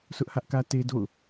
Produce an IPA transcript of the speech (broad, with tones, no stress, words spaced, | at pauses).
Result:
sʊ˦ʔhä˦ʔkä˦ te˦do̰˦˨ʊ̯